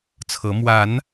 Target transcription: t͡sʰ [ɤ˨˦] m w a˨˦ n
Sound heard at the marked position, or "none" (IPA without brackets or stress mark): ɤ˨˦